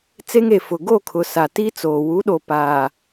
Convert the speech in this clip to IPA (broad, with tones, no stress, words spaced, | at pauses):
t͡se˦ŋeː˨fʊ˨ ɡo˦˨ kʰʊ˨sa˨tiː˦t͡soː˨ wu˨˦ɗo˨ paː˨